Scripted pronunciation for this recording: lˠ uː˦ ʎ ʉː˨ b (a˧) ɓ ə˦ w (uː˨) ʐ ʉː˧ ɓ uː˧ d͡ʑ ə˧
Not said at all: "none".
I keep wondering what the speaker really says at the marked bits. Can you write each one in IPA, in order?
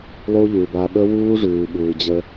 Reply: a˧, uː˦

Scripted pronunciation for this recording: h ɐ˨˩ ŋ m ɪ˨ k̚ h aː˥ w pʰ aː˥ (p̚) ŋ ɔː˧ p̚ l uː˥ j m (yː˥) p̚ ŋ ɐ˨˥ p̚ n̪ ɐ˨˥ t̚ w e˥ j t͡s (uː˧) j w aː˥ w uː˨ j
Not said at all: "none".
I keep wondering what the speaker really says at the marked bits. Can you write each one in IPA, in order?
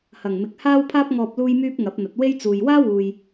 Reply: p̚, yː˥, uː˨

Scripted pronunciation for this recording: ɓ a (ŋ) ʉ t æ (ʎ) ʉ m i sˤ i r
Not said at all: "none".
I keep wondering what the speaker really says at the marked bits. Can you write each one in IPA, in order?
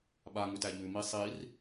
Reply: ŋ, ʎ

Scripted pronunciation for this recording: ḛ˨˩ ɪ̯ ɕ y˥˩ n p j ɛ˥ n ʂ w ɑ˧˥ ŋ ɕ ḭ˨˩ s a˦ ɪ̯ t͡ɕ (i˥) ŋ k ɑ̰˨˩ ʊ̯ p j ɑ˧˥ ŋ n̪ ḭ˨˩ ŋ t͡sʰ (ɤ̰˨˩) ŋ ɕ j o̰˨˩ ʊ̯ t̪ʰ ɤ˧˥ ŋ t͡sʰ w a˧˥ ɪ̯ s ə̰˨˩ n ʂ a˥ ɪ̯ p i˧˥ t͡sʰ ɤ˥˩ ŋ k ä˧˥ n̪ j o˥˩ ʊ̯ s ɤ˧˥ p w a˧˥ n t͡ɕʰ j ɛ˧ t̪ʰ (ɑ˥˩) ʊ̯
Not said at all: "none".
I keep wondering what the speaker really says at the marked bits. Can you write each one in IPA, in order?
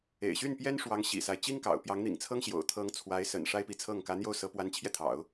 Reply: i˥, ɤ˥, ɑ̰˨˩˦

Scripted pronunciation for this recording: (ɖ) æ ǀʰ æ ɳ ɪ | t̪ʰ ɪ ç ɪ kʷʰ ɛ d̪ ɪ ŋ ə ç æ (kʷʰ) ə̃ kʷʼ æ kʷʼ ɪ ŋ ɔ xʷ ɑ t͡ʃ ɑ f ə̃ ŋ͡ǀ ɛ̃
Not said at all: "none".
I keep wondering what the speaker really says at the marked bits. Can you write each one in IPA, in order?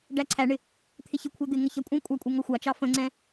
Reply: ɖ, kʷʼ

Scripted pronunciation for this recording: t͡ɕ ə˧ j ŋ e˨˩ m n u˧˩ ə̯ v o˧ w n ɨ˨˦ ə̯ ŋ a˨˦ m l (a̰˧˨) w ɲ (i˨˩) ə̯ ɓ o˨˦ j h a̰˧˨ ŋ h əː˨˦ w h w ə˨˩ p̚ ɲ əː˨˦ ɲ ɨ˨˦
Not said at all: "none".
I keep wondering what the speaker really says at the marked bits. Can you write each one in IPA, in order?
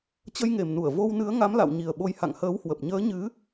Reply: a̰˧˨, i˨˩

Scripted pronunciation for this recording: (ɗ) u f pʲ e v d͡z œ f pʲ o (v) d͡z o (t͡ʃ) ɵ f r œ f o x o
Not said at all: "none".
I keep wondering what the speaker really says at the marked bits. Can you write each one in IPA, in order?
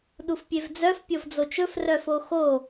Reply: ɗ, v, t͡ʃ

